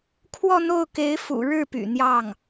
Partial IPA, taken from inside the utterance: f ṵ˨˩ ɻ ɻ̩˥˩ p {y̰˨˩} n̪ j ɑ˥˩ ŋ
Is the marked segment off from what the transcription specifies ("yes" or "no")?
no